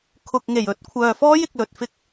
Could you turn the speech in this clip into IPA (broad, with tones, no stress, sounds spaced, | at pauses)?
kʰ ʊ˨ k̚ ŋ e˨˩ j ɵ˨˥ t̚ kʷʰ œː˨ f ɔː˥ j ɪ˨ k̚ l ɵ˨ t̚ f ɪ˥ k̚